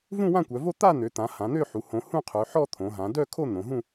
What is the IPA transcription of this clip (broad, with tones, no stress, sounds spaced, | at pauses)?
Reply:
v ũ˥˧ w ã˥˧ kʷ œ˩˧ v o˥˧ t̪ a˥˧ n̪ ø˩˧ t̪ ã˩˧ h ã˩˧ n̪ ø˥˧ ħ u˩˧ h õ˩˧ h ũ˥˧ qʰ ø˩˧ ħ ɔ˥˧ t̪ʰ õ˩˧ ɦ ã˩˧ d œ˥˧ kʰ o˥˧ n̪ õ˩˧ ɦ ũ˥˧